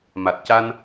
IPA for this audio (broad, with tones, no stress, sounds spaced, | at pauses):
m a˨˩ t̚ c a˧ n